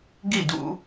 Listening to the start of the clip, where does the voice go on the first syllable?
falling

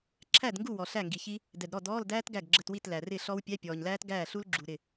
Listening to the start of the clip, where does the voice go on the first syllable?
falling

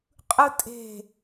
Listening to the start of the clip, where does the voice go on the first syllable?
high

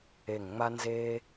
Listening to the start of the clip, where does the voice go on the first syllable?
low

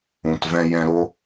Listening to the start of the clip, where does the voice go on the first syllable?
low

